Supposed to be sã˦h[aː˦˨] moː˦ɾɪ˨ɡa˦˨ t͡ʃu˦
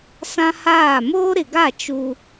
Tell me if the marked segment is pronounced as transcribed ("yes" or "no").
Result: yes